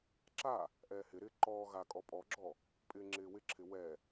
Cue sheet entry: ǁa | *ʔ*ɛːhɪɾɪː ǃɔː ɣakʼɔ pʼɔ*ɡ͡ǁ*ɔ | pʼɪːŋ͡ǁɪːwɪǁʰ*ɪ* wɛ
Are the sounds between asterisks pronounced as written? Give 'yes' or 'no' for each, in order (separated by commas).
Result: yes, yes, yes